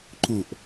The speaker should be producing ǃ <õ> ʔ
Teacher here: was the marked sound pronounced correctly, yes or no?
yes